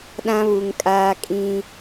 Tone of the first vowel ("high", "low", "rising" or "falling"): high